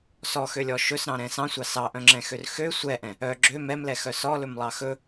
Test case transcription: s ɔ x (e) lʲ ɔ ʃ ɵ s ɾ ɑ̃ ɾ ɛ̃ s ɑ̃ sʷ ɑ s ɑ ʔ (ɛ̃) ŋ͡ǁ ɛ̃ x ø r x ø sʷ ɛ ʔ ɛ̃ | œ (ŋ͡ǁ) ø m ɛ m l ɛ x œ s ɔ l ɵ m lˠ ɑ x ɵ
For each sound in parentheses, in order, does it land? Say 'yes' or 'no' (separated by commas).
no, no, no